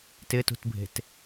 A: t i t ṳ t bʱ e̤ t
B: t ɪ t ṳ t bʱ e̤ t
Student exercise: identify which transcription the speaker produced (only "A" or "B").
B